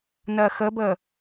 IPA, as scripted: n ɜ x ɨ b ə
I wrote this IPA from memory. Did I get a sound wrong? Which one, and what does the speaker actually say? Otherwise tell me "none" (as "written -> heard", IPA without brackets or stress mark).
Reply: ɨ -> ə